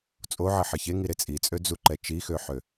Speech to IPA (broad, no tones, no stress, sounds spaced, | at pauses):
t͡sʼ o ʕ ə ħ ə ç e ŋ i ɾ e t͡sʼ i t͡sʼ ø d͡z u ǃ ɛ t͡ʃ i x ø ħ ø